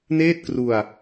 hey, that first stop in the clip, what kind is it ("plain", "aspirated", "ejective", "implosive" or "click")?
plain